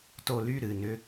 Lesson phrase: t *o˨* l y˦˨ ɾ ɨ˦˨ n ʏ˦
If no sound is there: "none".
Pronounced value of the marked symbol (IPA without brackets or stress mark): o˨